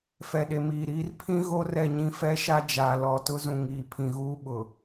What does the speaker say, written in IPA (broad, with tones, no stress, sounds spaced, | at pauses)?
f ɛ˨ ɗ e˨ m iː˨ ɾ iː˦ r pʰ ĩ˦ ɣ o˦ r ɛ˦˨ ɲ ĩ˦ f ɛ˦ ʃ a˦ d͡ʒ aː˨ l ɔ˨ t ʊ˦ z ũ˨ ŋ iː˨ pʰ ĩ˨ ɣ uː˦ ɓ ʊ˨